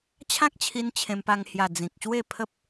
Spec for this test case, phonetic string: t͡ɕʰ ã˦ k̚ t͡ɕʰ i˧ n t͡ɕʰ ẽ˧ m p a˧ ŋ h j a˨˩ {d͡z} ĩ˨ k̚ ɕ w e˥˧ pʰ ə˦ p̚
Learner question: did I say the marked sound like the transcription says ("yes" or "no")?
yes